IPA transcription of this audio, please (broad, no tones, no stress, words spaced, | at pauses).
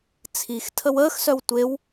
t͡sʰixtʰəw əːxsœw tʷew